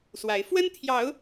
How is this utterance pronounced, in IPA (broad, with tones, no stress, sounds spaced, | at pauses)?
s w a˨˦ ɪ̯ f w ə˦ n t̪ʰ j ɑ˨˦ ʊ̯